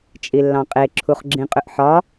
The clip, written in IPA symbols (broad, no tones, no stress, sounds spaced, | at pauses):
t͡ʃʼ i lː ɑ̃ qʼ e ǁʰ u χ ɡ͡ǁ ĩ qʼ ʏ ʔ ħ ɒ